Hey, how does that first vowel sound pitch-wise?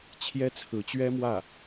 high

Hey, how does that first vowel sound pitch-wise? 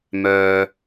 low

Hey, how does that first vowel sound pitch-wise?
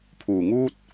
low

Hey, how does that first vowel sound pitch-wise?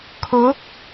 rising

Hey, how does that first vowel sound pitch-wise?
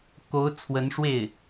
rising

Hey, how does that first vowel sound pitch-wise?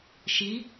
rising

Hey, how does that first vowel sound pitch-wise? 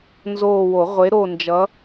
falling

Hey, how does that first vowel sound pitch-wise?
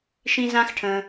low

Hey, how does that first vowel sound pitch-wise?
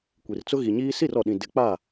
low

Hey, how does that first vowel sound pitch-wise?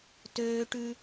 high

